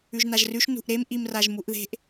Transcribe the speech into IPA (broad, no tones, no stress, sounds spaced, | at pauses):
ʉ ʒ n a ʒ r ʉ ʃ n ṳ ʔ ɾ e m ʔ i m r a ʒ m u ʔ ð e̤ ʔ